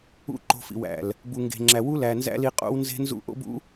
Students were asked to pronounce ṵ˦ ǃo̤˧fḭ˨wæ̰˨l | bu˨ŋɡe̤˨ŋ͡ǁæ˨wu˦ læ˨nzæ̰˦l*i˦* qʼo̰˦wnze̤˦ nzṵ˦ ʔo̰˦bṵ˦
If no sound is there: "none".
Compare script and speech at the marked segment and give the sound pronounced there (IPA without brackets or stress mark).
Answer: i˧